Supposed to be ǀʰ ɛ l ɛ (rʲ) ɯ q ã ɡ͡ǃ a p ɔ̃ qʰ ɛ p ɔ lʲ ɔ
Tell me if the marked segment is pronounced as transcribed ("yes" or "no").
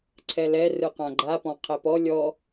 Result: no